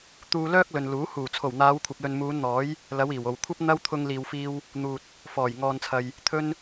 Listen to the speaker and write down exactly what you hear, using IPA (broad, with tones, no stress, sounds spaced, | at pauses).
t̪ uː˧ l œː˥ k̚ l ɵ˨ n l uː˨˥ h uː˨˩ t͡sʰ o˨˩ w n̪ aː˨˧ w kʷʰ ɐ˨ p̚ l ɵ˨ n m uː˨˧ n n̪ ɔː˨˥ j | l ɐ˨˧ w iː˨˩ w o˨˩ w kʷʰ ɐ˥ p̚ n̪ ɐ˥ w t̪ʰ ʊ˧ ŋ l iː˨ w f iː˧ w | n̪ uː˨ t̚ | f ɔː˨˩ j ŋ ɔː˨ n t͡sʰ ɐ˨ j | t̪ʰ ɵ˥ n